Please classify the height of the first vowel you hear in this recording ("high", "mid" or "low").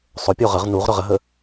mid